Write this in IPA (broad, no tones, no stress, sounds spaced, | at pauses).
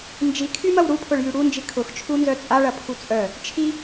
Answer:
n d͡ʒ i kʰ y m ɐ w ɾ u pʰ ʊ ɭ j y ɽ u n d͡ʒ i kʰ ʊ x t͡ʃʰ u n z œ t͡sʼ a ɭ ɐ pʰ u t͡sʼ œ | t͡ʃʰ i